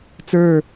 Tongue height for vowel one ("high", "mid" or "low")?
mid